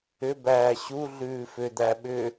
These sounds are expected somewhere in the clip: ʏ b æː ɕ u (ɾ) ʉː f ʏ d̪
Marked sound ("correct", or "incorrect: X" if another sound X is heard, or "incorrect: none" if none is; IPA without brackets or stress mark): incorrect: ɮ